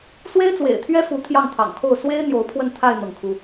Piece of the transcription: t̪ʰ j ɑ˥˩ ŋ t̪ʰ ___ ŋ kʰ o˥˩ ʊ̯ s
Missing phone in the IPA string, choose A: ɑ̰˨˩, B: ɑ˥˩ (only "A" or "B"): A